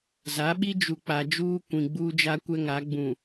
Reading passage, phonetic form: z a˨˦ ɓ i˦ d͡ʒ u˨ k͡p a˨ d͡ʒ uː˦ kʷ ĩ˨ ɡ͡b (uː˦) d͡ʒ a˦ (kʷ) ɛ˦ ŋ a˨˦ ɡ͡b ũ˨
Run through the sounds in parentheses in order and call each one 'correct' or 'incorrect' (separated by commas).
correct, correct